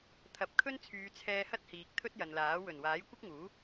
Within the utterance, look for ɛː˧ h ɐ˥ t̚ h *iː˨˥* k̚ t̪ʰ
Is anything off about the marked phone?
yes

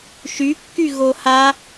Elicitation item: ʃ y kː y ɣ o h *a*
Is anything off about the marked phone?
no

